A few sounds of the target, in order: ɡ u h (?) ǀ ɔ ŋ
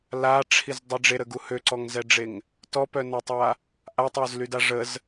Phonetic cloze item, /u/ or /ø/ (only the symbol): ø